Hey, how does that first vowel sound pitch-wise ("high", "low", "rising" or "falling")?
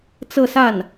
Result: falling